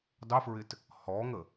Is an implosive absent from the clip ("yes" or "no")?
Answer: yes